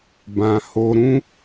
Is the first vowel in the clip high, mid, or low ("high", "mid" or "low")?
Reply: low